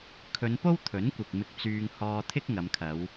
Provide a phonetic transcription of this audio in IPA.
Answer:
kʰɵ˨˧npo˥w t̪ʰɵ˨˥nkʷɪ˨k̚ mɪ˧k̚t͡syː˧ŋ hɔː˧t̪ʰɪ˥k̚ ŋɐ˨˧mkʰɐ˨˧w

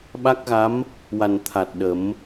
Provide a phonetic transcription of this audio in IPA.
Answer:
ɓa˦˥k̚ɣa˧˥m | wa˨˩n t̪ʰa˨˩t̚ɗə˨˩˦m

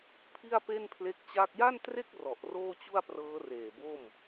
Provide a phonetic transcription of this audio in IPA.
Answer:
pʰi˥˩a̯pe˥˩npʰle˦˥k̚t͡ɕa˥˩k̚ ja˥˩ntre˥˩k̚ rɔ˨˩ʔroː˥˩t͡ɕu˥˩a̯ prɤː˦˥reː˨˩bo˥˩m

